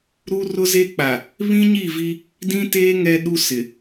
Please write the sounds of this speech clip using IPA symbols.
ɾ u˦ r ʊ˦ z e˦ k͡p a˨ | β ĩ˦ ɲ i˦˨ v i˦ | d ĩ˦ t eː˦ ŋ ɛ˦ ɗ u˦ s ɪ˨

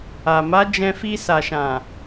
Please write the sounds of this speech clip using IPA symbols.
a˨ m a˨˦ d͡ʒ ɛ̃˧ f i˧ s a˨ ʃ ã˨

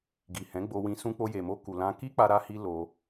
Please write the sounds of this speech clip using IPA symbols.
ɡ i˨ h ɛ̃˨˦ ɡ͡b o˧ w ĩ˧ s ũ˧ k͡p o˧ j e˨ m o˧ k u˨ l ã˧ k i˦ k͡p a˧ ɾ a˧ h i˧ l o˧

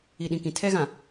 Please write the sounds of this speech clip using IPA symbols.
i˨ ɗ ĩ˨ k ĩ˨ tʰ ɛ˦ ɣ ã˨

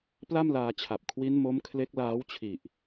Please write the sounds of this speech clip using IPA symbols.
p l a˥˩ m l aː˧ t͡ɕʰ a˨˩ p̚ kʰ w i˦˥ n m o˦˥ m kʰ l e˦˥ k̚ l aː˦˥ w t͡ɕʰ i˨˩ ʔ

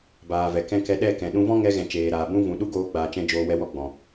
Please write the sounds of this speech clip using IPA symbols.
b aː˨ v ɛ˨ k ɛ̃˦ k ɛ˧ ɗ ɛ˦˨ k ɛ̃˨ ɗ ũ˧ v ɔ̃˦ ŋ ɛ˧ ɣ ɛ̃˨ t͡ʃ eː˨ ɾ aː˨ b ũ˦ v ũ˨ ɗ u˦ ɡ oː˧ ɡ͡b aː˨ t͡ʃ ɛ̃˧ d͡ʒ oː˧ w ɛ˧ w ɔ˦ ɡ͡b ɔ̃˨

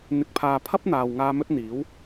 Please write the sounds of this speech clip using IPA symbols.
n̪ ɪ˨ k̚ pʰ aː˨ pʰ ɐ˥ p̚ n̪ aː˨ w ŋ aː˧ m ɵ˥ t̚ n̪ iː˨˥ w

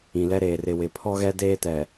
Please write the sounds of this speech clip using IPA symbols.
ĩ˨ l ɛ˦ ɾ eː˨ r ɪ˨ w ɪ˨ pʰ ɔ˦ ɣ ɛ˦ d eː˦ t ɛ˨

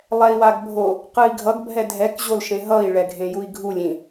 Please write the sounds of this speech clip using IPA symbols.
lˠ ɛ i̯ w a ɡ bʱ o | q ɯ i̯ ɡʱ ʌ ɡ bʱ ɛ dʱ ɛ k ʑ o l ʃ ẽ ɦ ʌ i̯ ɭ ɛ ɡʱ ẽ j u i̯ ɡʱ u lʲ ĩ

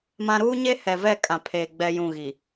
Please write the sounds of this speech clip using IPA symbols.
m ã˦ ɾ uː˦ ɲ e˦ h ɛ˨ v ɛ˦˨ kʼ ã˨ pʰ eː˨ ɡ͡b ɛ˦ j ũ˦˨ ɣ i˨

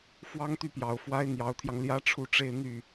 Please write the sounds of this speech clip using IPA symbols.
f w ɑ˥ ŋ t̪ y˥˩ p j ɑ˨˩ ʊ̯ f w a˥ ɪ̯ n̪ j ɑ˧˥ ʊ̯ t̪ʰ j ɑ˧ ŋ l j ä˥ ʈ͡ʂʰ u˥˧ ʈ͡ʂ e˥˧ ɪ̯ n̪ y˥˩

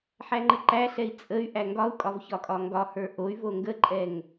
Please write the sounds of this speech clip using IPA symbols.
ħ æ ŋ͡ǃ ə ǃ æ ɬ ɛ i̯ t͡sʼ ə y̯ ʔ æ ŋ ɡ ɒ u̯ kʼ ɒ v ç ɒ kʼ ɒ ŋ ɡ ɒ h ə˞ ʔ o y̯ v o ŋ ɡ ə ǃʼ ɛ ŋ

